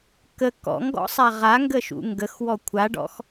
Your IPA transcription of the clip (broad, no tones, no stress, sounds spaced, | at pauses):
k ə k ɔ̰ ŋ ɡ ɔ̰ sˤ a ʁ a ŋ ɡ ə ʃ ṵ ŋ ɡ ə x w ɔ kʷʰ a ɖ ɔ̰ x